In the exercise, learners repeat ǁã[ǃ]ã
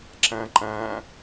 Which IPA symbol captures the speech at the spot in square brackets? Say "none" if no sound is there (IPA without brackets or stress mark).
ǃ